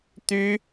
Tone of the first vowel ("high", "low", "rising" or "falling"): high